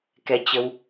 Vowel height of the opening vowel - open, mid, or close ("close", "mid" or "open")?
mid